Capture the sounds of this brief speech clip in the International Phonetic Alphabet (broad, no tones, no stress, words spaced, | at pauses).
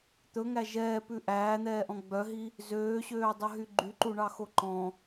t̪ɵŋæ ʒɛːpʉ ʔæːn̪ɛːʔɔ̃ ɡ͡bœɦi | zøːɕøːdˤɵɦy ɡ͡ǃyǃuɳɑxo ǃɔ̃